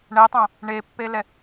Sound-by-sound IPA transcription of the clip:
ɳ ɛ tˤ ã | ɳ e pː e l ɛ

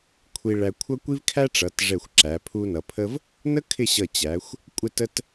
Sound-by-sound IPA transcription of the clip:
kʷʰ i˧ ɭ æ˧ kʷʰ ʌ˥ kʷ i˥ v kʰ æ˥ ʈ͡ʂ ʌ˩˧ t ʐ ɛ˧˩ xʷ ǁ æ˩˧ pʰ u˧ n ʌ˩˧ pʰ ə˥ v | n ə˥ kʰ ɪ˥˧ ɕ ʌ˧˩ t͡ɕ æ˩˧ xʷ | kʷʼ ɪ˥˧ t ə˥ t

